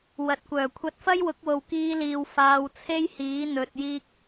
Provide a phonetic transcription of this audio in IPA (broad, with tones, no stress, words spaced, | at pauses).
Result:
wɐ˨t̚kʷœː˨˩ kʷʰɐ˧t̚fɐ˥jwʊ˨˥k̚wo˨w kiː˧liː˨w faː˧wt͡sʰe˥jhiː˨˥ n̪ɵ˨t̚jiː˧k̚